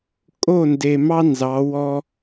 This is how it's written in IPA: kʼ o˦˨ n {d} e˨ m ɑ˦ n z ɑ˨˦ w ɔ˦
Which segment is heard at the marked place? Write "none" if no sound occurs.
d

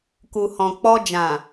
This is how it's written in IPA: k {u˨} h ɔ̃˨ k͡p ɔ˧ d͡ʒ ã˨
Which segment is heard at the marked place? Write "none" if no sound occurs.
u˨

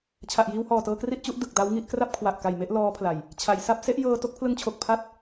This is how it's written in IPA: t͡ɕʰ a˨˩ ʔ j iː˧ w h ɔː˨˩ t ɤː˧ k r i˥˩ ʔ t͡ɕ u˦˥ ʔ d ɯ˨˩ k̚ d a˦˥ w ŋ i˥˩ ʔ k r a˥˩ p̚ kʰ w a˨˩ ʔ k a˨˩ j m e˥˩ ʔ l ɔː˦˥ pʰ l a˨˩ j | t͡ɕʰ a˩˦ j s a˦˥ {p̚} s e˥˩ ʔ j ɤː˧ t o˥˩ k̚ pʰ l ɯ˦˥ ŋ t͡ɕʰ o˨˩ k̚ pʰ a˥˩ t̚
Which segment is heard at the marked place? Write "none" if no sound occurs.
p̚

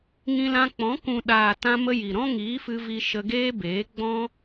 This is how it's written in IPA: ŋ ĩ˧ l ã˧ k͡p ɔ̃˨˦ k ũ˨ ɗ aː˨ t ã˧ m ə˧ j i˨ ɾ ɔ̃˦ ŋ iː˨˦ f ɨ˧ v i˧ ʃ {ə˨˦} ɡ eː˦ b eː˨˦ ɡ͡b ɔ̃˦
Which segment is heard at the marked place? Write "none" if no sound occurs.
ə˧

